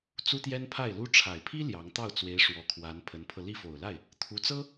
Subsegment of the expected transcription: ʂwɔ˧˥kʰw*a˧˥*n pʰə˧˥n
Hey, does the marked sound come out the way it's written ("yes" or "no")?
yes